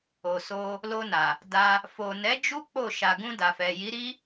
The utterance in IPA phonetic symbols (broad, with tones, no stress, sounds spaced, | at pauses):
o˨ s o˧ | l o˧ n a˨ | d a˧ | f o˨ n ɛ˨˦ d͡ʒ u˦ k͡p o˦˨ ʃ a˨ ɡ ũ˧ d a˨ f ɛ˨ j i˨˦ ɾ i˦